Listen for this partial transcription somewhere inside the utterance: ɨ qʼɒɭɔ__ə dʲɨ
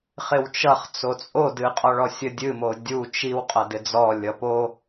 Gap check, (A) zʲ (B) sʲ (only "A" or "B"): B